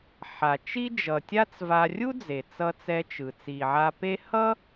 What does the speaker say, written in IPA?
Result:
ħa˩t͡ʃi˥ d͡ʒʌ˩ tʲa˥t͡sva˧ rʲu˥d͡ze˩ t͡sʌ˧t͡sɛ˧t͡ʃɯ˩ t͡si˩ʕa˧pe˥ hʌ˥

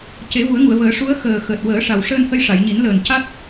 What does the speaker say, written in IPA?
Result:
ce˨˩˦vu˨˩˦ə̯ŋu˨˩˨ə̯vəː˨˩˦ ʂu˧˥ə̯ xəː˨˩ xəː˨˩t̚wəː˨˩˦ʂa˨˩wʂəː˧n hə˧jʂa˨˩˨jɲi˨˩˦n ləː˨˩nca˦˥t̚

